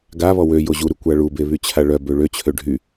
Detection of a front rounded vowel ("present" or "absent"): present